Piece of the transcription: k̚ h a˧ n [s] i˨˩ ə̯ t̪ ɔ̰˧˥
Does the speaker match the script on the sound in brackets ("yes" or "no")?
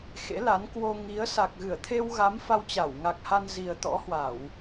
no